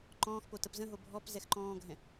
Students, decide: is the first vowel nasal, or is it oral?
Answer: nasal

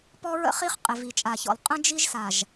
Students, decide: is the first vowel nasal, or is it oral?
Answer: oral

